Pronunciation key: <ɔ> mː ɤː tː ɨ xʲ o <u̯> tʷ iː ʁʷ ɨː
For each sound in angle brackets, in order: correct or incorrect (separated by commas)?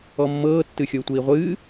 correct, correct